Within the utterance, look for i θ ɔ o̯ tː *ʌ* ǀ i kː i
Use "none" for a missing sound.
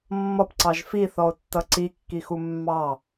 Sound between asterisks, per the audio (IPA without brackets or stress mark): ʌ